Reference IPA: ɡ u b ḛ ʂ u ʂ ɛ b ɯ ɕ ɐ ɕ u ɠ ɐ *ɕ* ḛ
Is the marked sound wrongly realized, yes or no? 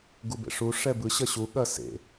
yes